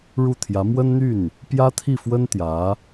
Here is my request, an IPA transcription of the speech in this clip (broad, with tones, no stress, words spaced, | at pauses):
ɻu˥˩t̪ʰjä˧˥ mwə˥nn̪y˥˩n | pjä˥t̪ʰi˥˩fwə˥n t̪jä˧˥